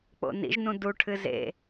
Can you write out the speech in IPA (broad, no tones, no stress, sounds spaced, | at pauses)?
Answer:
k͡p o̰ n ḭ ʒ n ũ d u ʈʰ ɨ z ḛ